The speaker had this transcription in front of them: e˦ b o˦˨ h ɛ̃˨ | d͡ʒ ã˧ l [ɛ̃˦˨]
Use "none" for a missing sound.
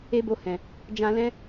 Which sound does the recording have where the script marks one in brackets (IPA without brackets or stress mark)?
ɛ̃˦